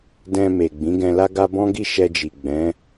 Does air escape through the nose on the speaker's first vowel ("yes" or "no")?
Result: yes